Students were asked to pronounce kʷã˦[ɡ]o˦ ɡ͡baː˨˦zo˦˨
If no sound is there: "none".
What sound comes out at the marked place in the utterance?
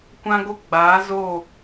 ɡ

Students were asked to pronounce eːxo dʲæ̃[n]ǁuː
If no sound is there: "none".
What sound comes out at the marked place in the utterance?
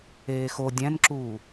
n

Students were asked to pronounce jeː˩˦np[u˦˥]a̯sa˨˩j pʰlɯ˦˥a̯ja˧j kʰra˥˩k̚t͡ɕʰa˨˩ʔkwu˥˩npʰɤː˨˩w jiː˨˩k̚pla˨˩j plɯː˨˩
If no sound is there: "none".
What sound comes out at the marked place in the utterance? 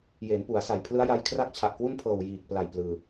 u˩˦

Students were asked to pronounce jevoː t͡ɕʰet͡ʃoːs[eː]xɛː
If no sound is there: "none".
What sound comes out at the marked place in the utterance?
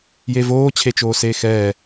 eː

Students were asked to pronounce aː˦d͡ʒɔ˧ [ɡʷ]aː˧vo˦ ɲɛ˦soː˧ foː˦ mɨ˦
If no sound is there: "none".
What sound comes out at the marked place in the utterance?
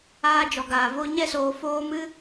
ɡ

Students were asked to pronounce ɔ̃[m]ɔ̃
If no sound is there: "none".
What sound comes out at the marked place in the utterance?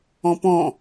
p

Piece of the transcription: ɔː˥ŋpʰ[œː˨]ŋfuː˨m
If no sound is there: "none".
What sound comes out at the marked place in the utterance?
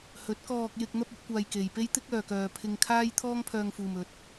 œː˧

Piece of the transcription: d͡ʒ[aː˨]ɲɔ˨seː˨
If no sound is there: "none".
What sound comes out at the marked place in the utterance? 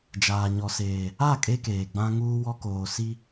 aː˨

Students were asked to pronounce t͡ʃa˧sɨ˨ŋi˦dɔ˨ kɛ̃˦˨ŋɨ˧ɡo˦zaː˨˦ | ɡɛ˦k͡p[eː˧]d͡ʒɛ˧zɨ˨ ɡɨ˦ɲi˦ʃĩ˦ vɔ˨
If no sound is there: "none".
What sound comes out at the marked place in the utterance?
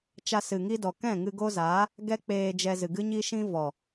eː˧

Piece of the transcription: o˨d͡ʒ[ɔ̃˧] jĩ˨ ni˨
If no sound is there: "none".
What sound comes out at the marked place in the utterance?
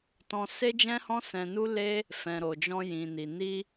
ɔ̃˧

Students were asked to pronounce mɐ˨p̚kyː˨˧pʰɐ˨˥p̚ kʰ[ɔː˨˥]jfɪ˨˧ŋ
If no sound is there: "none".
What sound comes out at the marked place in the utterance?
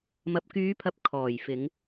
ɔː˨˩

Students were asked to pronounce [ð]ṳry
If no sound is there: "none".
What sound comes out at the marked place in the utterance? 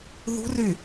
ð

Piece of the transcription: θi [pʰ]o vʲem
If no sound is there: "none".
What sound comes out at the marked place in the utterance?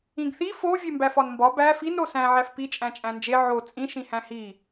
f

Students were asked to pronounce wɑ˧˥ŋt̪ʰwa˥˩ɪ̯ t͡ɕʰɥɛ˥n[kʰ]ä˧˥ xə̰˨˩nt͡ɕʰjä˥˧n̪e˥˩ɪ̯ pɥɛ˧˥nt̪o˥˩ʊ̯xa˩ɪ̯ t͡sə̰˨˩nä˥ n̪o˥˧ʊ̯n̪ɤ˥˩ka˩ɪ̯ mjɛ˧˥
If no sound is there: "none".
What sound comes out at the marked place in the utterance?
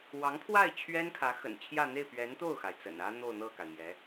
kʰ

